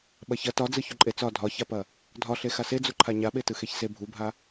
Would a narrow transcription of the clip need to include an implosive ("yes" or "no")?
yes